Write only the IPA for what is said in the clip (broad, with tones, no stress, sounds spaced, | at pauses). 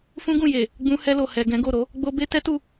f ũ˦ ɡ ũ˦˨ j e˨ | ɡ͡b ũ˧ h ɛ˧ l o˨ h ɛ˨ ɡ ɛ̃˨˦ ɡ o˦˨ ɾ o˧ | ɡ͡b o˧ b e˦ t ɛ˦ t u˦˨